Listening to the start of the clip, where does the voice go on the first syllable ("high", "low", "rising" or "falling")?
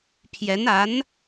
rising